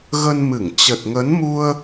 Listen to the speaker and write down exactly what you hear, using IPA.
ɣ ə˧ n m ɨ˧˩ ŋ t͡ɕ ə˨˩ t̚ ŋ ə˨˦ n m u˧ ə̯

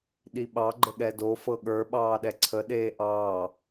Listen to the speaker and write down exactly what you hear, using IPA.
ɗ i ɓ ɑ ɡ͡ǃ ə ɠ ɛ d o f ɤ ɠ ə˞ ɓ ɑː ɗ ɛ ǀʰ ə ɗ eː ʔ ɑː

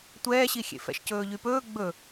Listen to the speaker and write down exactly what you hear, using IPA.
tʷ ɛː ɕ i xʲ ḛ f ɛ̰ ʃ c ɵː ʎ y p ɵː ɡ͡b ɵ

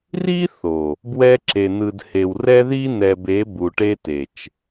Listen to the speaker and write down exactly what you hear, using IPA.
r i˦ θ o˨ | b w ɛ˦ ǁ e˨ n̪ ɯ˨ d h e˨ w r ɛ˦ ð i˦ n̪ ɛ˨ b e˨˦ b u˨ ʈ e˦ t e˨ t͡ʃ

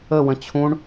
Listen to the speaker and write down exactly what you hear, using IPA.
ə w ə̃ t͡ɕʰ ũ ɳ

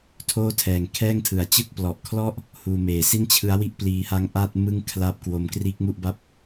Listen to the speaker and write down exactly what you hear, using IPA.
tʰ oː˥˩ tʰ ɛː˨˩ ŋ kʰ ɛː˥˩ ŋ tʰ ɯ˨˩ a̯ t͡ɕ ɯ˥˩ k̚ p l ɔ˨˩ ʔ kʰ l ɔ˥˩ ʔ | h uː˧ m eː˨˩ s i˥˩ n t͡ɕʰ ɯ˦˥ a̯ w i˥˩ ʔ p l iː˧ h a˦˥ ŋ ʔ a˥˩ t̚ m ɯ˥˩ ŋ kʰ l a˦˥ p̚ k w o˧ m k r iː˦˥ k̚ m u˥˩ ʔ b a˥˩ p̚

